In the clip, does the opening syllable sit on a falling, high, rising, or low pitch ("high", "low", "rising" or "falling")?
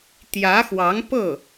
rising